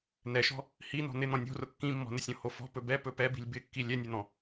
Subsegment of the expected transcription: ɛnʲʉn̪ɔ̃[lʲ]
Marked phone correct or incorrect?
incorrect